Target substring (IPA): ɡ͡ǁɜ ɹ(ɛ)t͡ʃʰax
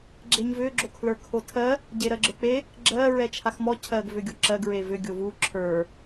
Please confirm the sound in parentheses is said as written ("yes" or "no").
yes